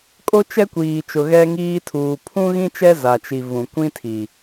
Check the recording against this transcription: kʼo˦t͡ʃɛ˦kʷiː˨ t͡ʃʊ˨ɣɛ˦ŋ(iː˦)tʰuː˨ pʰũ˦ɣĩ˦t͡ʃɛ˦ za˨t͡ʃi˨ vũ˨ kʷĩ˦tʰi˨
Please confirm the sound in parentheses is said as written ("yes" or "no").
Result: yes